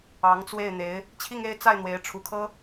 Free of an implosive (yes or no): yes